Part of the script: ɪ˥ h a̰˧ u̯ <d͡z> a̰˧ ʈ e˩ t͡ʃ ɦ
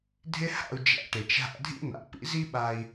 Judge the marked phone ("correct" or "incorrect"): incorrect